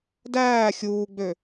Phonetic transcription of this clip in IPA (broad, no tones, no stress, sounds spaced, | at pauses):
d æː xʲ uː ɡ͡b ø